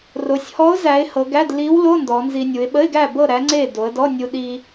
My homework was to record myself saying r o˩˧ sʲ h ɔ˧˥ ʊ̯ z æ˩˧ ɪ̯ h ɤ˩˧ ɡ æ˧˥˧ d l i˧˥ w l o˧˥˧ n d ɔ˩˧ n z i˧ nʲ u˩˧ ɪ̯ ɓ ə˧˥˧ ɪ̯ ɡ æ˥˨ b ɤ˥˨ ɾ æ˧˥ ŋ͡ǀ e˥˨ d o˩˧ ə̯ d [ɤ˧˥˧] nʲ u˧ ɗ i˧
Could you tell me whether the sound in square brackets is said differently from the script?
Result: yes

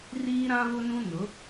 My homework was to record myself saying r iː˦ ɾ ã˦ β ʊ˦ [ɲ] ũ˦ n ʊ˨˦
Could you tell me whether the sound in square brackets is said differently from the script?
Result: yes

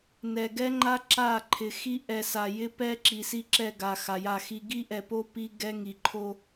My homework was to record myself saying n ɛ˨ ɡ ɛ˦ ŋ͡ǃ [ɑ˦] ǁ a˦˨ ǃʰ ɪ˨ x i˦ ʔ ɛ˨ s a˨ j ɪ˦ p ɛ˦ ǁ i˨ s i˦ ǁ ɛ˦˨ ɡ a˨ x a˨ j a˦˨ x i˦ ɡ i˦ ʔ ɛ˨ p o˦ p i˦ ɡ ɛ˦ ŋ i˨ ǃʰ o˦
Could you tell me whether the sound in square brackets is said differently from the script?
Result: yes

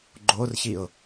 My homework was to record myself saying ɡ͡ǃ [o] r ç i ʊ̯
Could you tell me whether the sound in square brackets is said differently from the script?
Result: no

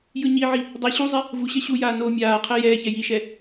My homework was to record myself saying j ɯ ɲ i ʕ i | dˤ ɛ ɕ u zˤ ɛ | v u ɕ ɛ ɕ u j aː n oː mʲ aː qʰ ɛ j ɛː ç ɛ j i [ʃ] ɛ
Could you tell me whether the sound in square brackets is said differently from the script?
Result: no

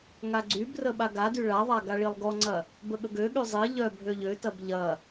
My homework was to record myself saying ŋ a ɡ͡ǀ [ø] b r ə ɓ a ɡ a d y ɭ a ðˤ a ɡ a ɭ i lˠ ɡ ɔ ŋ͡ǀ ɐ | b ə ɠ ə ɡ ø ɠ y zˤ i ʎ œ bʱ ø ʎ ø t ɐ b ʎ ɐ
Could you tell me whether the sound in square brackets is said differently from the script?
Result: yes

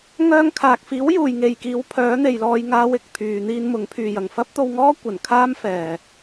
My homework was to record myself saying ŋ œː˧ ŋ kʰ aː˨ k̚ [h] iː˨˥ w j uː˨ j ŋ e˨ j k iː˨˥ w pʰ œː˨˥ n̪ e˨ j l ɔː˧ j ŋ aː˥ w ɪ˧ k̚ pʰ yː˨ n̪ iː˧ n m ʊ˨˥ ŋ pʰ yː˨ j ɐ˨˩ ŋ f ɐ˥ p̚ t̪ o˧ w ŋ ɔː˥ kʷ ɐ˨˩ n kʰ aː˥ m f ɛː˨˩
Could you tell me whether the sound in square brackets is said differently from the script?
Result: yes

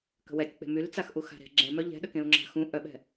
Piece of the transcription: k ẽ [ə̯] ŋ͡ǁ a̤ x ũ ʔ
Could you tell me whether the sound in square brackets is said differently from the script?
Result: yes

